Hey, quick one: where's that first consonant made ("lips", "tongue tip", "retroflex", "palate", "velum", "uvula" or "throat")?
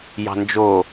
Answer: palate